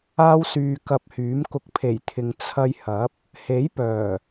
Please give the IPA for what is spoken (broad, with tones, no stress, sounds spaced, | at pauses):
aː˥ w s yː˧ k ɐ˧ p̚ h yː˨˥ m k ʊ˧ k̚ pʰ e˨˩ j t̪ʰ ɪ˨ ŋ t͡sʰ ɐ˧ j h ɐ˨˥ p̚ | h e˨˥ j p œː˨˩